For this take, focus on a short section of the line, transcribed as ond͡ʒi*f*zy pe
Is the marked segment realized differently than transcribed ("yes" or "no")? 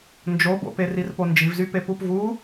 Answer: yes